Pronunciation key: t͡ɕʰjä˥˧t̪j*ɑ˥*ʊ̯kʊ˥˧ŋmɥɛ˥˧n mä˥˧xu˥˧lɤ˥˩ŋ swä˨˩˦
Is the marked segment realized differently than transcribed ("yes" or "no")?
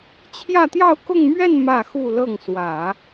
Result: yes